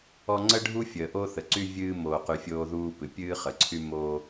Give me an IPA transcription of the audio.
ɔ˦ ŋ͡ǀə˦ɖʱu˦ fʲəː˨ʔo˦θə˨ǀy˦ vʲɨː˦ moː˨qy˨ fʲoː˦ðuː˦ pɨ˨pʲɨː˦χə˨ǀʰy˦ moː˦

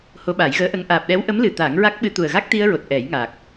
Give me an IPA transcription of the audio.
ho˧˥ɓa˨˩˦jɣəː˧˥ʔə˧ŋ ʔaː˨˩p̚ɗɛ˧˥wʔə˧˥mlɨ˨˩ t̪aː˨˩˦ŋɹa˦˥k̚ɓɨ˧ t̪u˨˩ə̯ɣa˦˥k̚t̪i˧ə̯ɹo˨˩t̚ ʔɛ˨˩˦jŋa˨˩k̚

